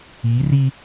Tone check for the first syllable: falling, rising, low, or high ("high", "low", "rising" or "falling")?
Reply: rising